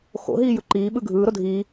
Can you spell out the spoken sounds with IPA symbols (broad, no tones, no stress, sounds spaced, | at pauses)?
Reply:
x o̰ ɦ iː j ɯ ǃ iː ɓ ɯ ɡʱ ɯː ɾ o dʱ iː